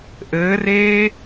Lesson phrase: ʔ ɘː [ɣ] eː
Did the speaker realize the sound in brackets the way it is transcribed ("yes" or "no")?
no